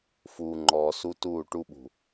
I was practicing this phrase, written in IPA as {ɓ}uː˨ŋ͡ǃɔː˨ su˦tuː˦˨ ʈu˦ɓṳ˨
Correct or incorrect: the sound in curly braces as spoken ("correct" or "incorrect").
incorrect